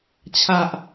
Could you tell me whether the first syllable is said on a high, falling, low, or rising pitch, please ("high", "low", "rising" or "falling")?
low